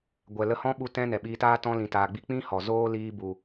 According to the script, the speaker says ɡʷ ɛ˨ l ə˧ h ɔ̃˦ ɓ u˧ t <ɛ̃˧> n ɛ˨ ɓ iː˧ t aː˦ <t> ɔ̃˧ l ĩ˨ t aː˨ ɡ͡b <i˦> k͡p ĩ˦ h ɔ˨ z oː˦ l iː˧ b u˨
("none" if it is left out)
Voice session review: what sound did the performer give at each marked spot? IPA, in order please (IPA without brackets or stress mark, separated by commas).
ɛ̃˧, t, i˧